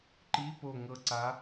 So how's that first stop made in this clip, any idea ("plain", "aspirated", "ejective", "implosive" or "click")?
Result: click